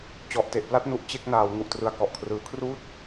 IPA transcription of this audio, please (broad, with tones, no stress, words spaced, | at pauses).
t͡ɕɔ˨˩ʔte˨˩ʔpla˥˩t̚nu˨˩ʔ t͡ɕe˥˩k̚naː˩˦w ŋu˨˩ʔtrɯ˨˩a̯kɔ˨˩ʔkʰrɯː˩˦ kʰruː˥˩t̚